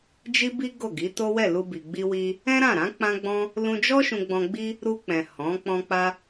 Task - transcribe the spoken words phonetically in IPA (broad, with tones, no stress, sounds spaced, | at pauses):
d͡ʒ i˦ b i˦ ɡ o˦˨ ɡ i˨˦ t o˦ w ɛ˦˨ l u˧ b i˨ ɡ͡b i˧ w i˧ | ɛ̃˦ ɾ ã˦˨ ɾ ã˨˦ k͡p ã˦ ɡ͡b ɔ̃˦ | l ũ˧ d͡ʒ ɔ˦ ʃ ũ˧ ɡ͡b ɔ̃˧ ɡ͡b i˧ | ɾ u˧ k͡p ɛ̃˨ h ɔ̃˨˦ k͡p ɔ̃˧ k͡p a˧